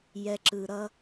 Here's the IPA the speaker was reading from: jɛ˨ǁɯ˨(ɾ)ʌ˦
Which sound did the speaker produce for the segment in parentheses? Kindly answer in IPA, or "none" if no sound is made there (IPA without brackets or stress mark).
ɾ